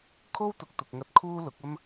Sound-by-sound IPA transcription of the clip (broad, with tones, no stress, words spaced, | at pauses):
kʰo˥wt̪ʊ˨k̚t̪ʊ˨k̚ŋɐ˧t̚ kʰuː˥lʊ˨˥k̚ɐ˥m